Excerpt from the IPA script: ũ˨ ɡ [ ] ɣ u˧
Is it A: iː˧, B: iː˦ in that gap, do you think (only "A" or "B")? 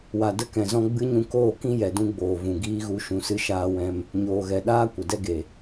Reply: B